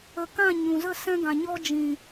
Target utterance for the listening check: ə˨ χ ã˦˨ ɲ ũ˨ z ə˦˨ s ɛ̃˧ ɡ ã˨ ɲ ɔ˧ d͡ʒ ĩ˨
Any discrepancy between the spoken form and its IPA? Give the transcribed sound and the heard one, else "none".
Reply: χ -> k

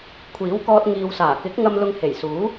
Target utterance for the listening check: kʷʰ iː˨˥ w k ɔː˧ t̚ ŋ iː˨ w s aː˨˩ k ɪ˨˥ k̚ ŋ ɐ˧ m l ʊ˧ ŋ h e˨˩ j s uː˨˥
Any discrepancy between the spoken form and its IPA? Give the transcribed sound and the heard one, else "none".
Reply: none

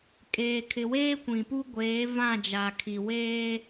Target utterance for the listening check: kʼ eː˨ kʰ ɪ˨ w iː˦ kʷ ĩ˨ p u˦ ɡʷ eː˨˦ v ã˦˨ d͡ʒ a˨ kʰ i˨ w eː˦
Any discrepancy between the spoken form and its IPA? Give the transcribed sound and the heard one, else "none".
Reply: iː˦ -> eː˦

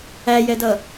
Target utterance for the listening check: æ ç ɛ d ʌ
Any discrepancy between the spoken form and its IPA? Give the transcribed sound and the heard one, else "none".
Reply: ç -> j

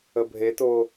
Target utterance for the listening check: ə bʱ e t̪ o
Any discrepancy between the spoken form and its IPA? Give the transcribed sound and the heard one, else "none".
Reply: none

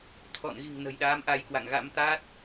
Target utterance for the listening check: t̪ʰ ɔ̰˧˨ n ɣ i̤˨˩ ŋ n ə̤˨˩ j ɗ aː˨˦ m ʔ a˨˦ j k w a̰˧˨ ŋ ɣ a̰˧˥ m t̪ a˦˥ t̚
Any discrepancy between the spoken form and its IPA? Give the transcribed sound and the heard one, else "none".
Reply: none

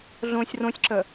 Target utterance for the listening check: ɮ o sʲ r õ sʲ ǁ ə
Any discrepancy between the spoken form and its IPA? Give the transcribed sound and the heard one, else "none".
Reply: o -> õ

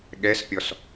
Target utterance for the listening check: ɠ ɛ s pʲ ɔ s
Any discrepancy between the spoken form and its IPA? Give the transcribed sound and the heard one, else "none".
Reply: none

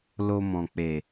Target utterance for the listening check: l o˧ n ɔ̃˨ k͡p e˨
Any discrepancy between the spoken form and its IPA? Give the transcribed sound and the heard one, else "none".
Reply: n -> m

